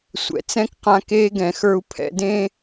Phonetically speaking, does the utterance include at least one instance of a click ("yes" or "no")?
no